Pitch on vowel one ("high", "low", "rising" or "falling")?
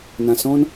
low